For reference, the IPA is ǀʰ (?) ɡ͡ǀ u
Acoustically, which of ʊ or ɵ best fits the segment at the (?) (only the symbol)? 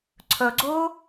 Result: ɵ